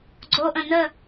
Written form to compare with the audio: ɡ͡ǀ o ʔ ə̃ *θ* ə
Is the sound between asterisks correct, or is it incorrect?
incorrect